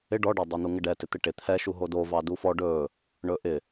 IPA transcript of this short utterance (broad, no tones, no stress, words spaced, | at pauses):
ɪ ɖɔɖɑ dˤon̪uŋɪɖɛ tɪt̪ɪʈɪ t̪ʰɛʃu ɦodo vɑdufɔ ɖɵ | ɳɵʔɪ